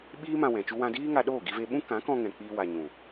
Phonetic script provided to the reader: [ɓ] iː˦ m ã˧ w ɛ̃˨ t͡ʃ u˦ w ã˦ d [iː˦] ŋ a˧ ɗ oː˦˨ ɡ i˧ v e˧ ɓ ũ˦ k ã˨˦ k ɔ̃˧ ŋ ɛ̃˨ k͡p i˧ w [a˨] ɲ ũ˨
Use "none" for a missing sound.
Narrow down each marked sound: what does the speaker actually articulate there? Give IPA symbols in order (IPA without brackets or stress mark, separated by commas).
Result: ɓ, iː˦, a˨